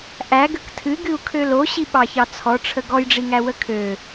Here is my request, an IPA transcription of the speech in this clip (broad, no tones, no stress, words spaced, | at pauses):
ʔæɡək tʰɨɡɨu̯kʰø loɕiɓɑçɑ t͡sʰɔʈ͡ʂʰə ɡɔjɖ͡ʐiŋæwə kʰø